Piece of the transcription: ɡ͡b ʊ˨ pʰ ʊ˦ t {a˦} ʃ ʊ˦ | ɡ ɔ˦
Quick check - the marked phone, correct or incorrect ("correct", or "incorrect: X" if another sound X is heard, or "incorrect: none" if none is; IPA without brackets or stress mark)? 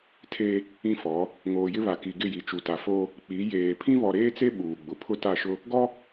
incorrect: a˦˨